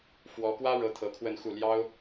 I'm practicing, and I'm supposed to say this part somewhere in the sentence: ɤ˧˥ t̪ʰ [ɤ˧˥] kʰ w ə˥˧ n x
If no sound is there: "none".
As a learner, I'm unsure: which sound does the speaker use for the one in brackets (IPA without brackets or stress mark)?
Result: ɤ˧˥